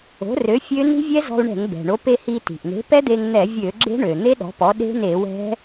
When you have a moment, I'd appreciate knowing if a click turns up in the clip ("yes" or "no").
yes